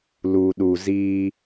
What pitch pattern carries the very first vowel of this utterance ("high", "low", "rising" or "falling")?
low